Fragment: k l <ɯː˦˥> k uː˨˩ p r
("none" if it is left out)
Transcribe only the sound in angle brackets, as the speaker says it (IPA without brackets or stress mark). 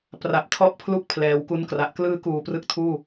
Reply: ɯː˦˥